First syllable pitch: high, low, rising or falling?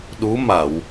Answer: rising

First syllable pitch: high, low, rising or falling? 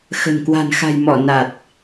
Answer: low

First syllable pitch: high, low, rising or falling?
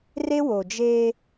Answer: high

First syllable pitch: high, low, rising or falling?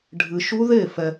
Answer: low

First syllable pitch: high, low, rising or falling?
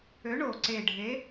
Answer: rising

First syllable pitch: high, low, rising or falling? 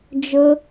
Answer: high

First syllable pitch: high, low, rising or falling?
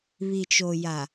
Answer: low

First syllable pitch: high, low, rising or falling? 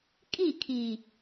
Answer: falling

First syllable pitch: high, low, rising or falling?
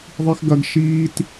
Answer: high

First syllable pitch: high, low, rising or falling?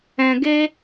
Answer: low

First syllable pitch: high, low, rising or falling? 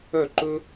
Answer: falling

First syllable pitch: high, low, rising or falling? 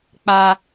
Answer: high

